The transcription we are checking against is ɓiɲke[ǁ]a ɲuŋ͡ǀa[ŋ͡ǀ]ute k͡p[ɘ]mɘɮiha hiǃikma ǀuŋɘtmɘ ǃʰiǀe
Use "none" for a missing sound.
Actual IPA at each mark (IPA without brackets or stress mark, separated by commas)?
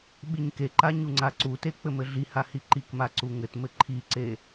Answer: ǃ, ǀ, ɘ